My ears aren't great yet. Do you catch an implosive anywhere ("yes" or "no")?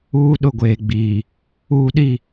yes